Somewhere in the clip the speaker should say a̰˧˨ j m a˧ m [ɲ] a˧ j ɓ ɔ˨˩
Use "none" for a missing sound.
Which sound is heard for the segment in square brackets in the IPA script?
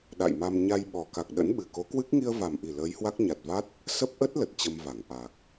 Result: ɲ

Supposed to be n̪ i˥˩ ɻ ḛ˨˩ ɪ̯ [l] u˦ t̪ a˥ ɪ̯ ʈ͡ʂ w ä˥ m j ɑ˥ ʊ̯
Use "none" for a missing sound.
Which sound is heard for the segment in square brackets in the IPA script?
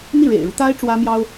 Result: ɻ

